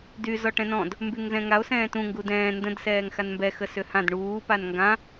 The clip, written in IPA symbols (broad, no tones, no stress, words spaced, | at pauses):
dy zɔʈɛ̃nɔ̃d | mbyŋzɛ̃ŋao̯ sɛ̃ːtũ ŋɡudɛ̃ː ndə̃d sɛːŋxanmbɛ xəsʏhãd ɳuː panŋɡã